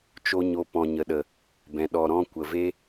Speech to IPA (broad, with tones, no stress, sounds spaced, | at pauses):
t͡ʃ o˦ ɲ o˧ p ɔ̃˨ ɲ ə˨ ɗ ə˨ | b ɛ̃˨ ɗ ɔ˨ ɾ ɔ̃˧ kʷ ə˨ v e˦